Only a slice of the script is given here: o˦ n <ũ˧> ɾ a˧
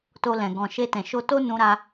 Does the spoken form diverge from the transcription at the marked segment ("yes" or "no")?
no